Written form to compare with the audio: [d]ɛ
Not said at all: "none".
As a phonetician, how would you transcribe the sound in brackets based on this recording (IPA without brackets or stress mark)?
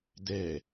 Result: d